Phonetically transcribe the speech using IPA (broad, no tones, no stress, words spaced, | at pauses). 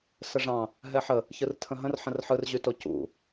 səʐɑ̃ | ɦɛħə | çɯrtʰə̃ɦə̃r ħə̃rħɯrʑyto cṵ